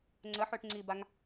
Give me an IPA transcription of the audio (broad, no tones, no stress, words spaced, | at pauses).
ŋ͡ǀəħøʈ ŋ͡ǀibaŋ